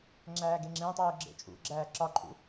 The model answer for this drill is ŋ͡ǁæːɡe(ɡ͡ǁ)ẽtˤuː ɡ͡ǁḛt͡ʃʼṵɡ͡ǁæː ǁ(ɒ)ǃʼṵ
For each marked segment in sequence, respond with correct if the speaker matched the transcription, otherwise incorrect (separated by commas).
incorrect, correct